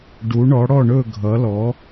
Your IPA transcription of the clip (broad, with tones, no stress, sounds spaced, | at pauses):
ɖ u˩˧ ɳ ɔ˩˧ ɽ ɔ˧˩ ɳ ɵ˧˩ ɡʱ ʌ˩˧ l ɔ˩˧